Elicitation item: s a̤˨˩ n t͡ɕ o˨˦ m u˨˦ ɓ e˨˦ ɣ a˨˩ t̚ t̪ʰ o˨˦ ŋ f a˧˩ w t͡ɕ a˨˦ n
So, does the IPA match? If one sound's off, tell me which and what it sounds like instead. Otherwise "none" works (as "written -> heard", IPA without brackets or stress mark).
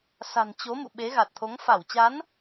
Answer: u˨˦ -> ṵ˧˨